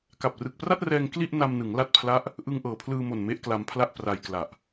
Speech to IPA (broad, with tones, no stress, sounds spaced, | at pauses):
k a˨˩ p̚ r ɯ˨˩ k̚ p r a˥˩ t̚ r ɛː˧ ŋ k l i˥˩ ʔ n a˧ m n ɯ˩˦ ŋ l a˦˥ t̚ pʰ l a˦˥ ʔ | ʔ ɯ˧ ŋ ʔ ɤː˩˦ pʰ l ɯː˧ m o˨˩ n m e˦˥ ʔ k l a˧ m pʰ l a˥˩ ʔ p r a˧ j k l a˨˩ ʔ